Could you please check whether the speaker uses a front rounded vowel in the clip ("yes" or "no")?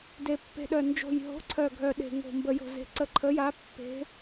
yes